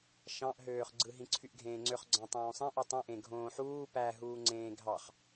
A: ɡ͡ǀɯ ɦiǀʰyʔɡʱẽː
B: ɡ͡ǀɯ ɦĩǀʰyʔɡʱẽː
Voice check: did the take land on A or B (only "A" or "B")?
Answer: B